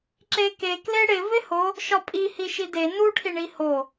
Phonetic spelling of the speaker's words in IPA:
ǁ e k e k l e ɽ ɪ v ɪ h o | ʃ ɒ pʼ i h i ʃ i d e n u ʈʰ i ɳ i h o

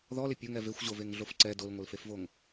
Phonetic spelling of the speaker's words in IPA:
ð ɔ l ɪ pʲ o ŋ ɛ v e xʷ ʑ o v e ŋ ɮ o f ǀ ɛ d o l ŋʷ ɛ l f e f v o ŋ

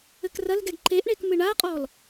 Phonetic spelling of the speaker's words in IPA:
ɘ k r ɐ l ɡ ɛ ɡ ǃ e ʔ ɳ e k m ɨ ɳ a qʼ ɔ l

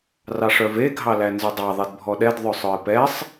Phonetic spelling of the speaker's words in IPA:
r ɑ ʂ œ v e ɡʱ ɑ l æ n z ʉ dˤ ɑ ðˤ i d bʱ ɔ ɗ ɛ d ðˤ ɵ sˤ œ ɪ̯ p ɛ sˤ

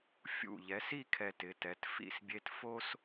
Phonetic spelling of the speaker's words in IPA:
fʲ ṵ˧˩ ʎ ɛ˩˧ s i˥˧ kʰ ɛ˧ t ɪ˩˧ t ɛ˩˧ t f ḭ˥˧ s bʲ e˥ t f o˥ s

